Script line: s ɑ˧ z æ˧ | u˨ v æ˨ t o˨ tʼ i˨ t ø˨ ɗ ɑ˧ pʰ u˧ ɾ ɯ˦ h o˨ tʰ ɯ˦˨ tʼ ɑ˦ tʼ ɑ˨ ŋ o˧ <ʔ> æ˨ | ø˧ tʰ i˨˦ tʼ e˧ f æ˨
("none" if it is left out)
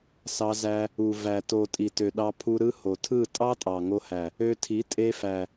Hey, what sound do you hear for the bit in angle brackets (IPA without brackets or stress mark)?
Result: h